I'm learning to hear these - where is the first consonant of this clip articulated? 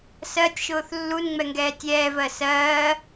tongue tip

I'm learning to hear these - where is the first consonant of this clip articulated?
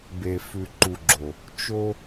lips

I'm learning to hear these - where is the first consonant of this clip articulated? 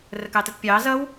tongue tip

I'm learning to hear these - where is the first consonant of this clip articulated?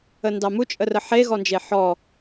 tongue tip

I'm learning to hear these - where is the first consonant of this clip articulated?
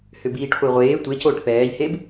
throat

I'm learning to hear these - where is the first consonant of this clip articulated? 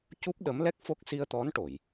palate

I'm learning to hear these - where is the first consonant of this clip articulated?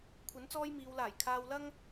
velum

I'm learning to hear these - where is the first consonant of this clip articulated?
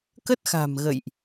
velum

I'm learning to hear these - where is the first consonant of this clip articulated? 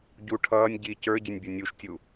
palate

